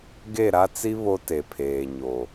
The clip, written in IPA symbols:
ɡ e˦˨ ɾ a˦ t͡s i˦ β o˦ t e˨ pʰ eː˨ ɲ o˨

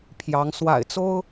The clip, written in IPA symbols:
pʰ j ɑ˧˥ ŋ s w a̰˨˩ ɪ̯ t͡s o˥ ʊ̯

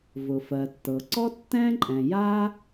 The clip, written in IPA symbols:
v ʊ˩ f ɜ˩ tː ɤ˩ ǀ ɔ˥ tː ɛ̃˥ ǃʼ ɛ̃˩ j a˥

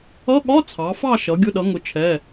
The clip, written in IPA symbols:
ʌ˧˥˧ ɠ ɒ˧˥˧ t͡sʰ ɑ˩˧ f ɑ˦˨ ʃ ʌ˩˧ ɡʲ ʊ˧˥˧ ɗ ʌ˩˥ ŋ ʊ˩˥ t͡ʃʰ ɛ˩˧˩

